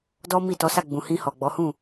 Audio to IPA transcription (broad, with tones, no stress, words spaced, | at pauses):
dɔ˦mi˦˨ tɔ˨˦sa˦˨ɡ͡bũ˨ hĩ˧hɔ˨ɡ͡bɔ˨˦hũ˦˨